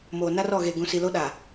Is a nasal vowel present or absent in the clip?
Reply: present